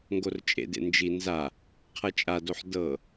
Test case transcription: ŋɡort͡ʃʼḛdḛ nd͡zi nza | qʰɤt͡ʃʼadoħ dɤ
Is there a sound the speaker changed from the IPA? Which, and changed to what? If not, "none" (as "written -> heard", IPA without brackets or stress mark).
d͡z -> d͡ʒ